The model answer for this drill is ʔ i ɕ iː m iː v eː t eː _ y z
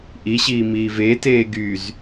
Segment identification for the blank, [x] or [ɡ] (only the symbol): ɡ